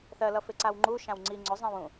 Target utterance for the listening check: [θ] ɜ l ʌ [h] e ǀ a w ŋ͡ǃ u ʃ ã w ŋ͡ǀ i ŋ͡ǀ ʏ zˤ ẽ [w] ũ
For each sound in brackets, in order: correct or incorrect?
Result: correct, incorrect: f, correct

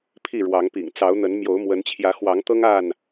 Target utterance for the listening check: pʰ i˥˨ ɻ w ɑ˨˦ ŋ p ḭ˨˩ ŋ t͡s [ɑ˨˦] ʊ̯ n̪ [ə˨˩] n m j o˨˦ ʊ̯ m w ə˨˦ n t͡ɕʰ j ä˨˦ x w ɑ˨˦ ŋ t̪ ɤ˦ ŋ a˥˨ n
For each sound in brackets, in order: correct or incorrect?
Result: correct, incorrect: ə˨˦

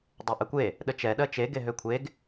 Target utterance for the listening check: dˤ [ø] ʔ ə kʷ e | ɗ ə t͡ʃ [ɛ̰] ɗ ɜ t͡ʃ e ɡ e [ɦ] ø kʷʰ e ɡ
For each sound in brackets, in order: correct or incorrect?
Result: incorrect: e, incorrect: ɛ, correct

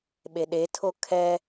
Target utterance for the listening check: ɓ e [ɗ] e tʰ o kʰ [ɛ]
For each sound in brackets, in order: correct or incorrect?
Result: correct, correct

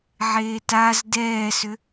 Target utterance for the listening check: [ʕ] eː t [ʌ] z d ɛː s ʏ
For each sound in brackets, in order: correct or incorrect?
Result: correct, incorrect: a

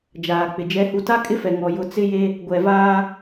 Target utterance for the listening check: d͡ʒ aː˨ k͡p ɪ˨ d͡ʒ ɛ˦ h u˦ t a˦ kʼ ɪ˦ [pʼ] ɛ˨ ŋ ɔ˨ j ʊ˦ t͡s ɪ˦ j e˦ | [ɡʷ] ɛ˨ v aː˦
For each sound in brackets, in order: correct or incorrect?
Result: incorrect: f, correct

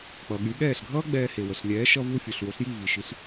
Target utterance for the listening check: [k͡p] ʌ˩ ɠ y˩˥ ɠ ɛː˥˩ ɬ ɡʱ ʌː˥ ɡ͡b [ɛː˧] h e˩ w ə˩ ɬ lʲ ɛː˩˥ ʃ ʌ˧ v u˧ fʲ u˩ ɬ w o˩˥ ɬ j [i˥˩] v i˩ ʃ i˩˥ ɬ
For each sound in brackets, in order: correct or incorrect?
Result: correct, correct, correct

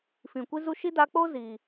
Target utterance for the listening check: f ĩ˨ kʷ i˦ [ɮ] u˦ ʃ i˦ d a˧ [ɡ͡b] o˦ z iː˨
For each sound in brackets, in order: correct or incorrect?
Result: incorrect: z, incorrect: k͡p

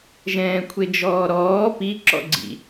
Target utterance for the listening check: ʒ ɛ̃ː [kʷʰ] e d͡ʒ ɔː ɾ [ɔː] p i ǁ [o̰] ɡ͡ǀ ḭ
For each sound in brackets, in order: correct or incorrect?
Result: correct, correct, incorrect: ɔ̰

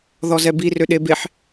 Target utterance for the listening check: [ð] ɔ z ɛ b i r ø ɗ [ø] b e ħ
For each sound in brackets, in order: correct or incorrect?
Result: correct, incorrect: e

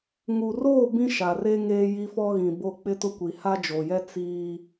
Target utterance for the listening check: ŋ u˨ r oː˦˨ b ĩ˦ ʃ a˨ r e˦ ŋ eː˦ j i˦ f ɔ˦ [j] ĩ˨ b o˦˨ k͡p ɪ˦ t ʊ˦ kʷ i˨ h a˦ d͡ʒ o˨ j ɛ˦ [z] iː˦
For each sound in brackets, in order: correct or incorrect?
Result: incorrect: ɣ, incorrect: t͡s

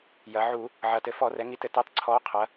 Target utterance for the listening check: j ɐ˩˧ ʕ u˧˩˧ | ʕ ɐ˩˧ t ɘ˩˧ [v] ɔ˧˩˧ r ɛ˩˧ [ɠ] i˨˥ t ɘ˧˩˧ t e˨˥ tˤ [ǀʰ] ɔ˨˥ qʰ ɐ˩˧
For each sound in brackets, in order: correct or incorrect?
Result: incorrect: f, incorrect: ŋ, correct

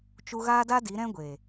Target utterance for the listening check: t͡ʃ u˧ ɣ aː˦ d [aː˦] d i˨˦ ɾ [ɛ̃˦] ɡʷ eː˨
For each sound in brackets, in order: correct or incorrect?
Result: incorrect: a˦, correct

